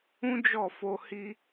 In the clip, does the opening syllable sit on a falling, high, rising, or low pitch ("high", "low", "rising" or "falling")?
high